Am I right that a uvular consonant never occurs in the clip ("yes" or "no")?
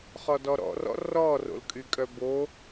no